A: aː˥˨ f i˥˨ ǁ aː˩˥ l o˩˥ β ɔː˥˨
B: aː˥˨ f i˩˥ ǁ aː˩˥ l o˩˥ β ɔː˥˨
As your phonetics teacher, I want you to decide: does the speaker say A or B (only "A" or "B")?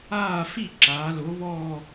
A